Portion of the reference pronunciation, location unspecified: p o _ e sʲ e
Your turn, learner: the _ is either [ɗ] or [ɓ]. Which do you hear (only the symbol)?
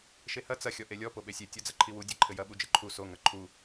ɓ